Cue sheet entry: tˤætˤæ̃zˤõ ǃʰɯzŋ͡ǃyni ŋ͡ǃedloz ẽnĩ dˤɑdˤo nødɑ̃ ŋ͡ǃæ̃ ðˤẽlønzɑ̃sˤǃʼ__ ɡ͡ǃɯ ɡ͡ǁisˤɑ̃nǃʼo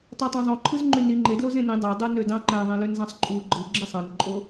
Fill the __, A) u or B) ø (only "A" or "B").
A